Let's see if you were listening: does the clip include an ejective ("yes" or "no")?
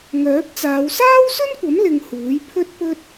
no